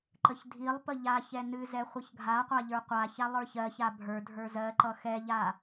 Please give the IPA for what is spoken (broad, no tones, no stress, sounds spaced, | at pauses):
ǃ ə ç dʱ i lˠ p ə ʎ a ç ɛ n ɨ z ɛ χʷ ʌ ç ɡʱ a qʷ a ʎ ə˞ qʷ a ç a lˠ ə˞ ç ɜ ç a bʱ ə˞ dʱ ə˞ z ɜ ǃ ʌ x ɛ ʎ a